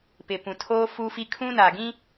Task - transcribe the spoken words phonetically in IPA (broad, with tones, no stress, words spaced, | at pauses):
pɪ˨pũ˨ tʰoː˦fu˦fi˦ kʰũ˦na˨ɡĩ˦